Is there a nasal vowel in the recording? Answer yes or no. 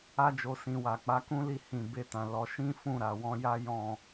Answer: yes